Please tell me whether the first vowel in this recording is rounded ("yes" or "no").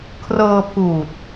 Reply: no